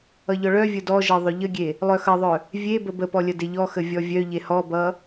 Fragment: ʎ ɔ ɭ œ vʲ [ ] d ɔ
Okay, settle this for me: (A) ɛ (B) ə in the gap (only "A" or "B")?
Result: B